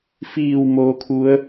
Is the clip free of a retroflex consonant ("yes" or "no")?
yes